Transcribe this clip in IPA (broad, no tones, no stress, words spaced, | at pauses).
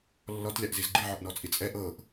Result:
lːɔtlʲaʔziz ɡ͡ǃiʕɔʔnɔt͡sʼi t͡sʼɛ ʔɤʔ